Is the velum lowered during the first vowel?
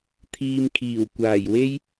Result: no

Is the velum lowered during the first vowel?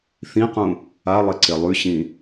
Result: yes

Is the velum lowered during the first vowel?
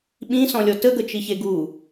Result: yes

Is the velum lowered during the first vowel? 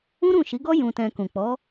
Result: yes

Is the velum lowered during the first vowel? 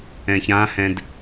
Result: yes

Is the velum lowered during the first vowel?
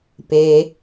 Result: no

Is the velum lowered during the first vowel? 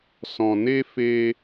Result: yes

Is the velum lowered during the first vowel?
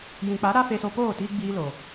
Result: yes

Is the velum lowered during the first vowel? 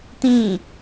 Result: yes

